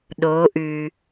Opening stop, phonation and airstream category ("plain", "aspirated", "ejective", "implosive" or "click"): implosive